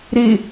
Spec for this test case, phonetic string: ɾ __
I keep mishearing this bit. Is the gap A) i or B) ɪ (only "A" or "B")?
B